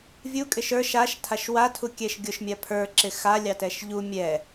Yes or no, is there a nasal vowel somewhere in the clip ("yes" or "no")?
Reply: no